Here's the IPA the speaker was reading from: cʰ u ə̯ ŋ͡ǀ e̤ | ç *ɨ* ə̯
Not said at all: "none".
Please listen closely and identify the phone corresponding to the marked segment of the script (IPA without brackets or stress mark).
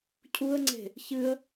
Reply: ɨ